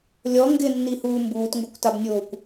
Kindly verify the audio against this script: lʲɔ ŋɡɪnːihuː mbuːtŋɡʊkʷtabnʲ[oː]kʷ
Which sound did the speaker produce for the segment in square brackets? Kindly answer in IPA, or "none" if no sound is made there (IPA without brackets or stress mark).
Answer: oː